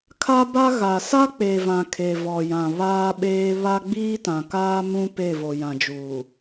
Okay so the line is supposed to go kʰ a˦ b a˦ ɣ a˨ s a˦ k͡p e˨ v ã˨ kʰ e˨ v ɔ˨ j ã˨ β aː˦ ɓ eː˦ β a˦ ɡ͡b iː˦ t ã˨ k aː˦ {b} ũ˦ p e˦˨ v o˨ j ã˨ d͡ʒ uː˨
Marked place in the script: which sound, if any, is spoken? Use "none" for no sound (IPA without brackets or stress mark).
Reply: m